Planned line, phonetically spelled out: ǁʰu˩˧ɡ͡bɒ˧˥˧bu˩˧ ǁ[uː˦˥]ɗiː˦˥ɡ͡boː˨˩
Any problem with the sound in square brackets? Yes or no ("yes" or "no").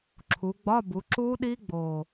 no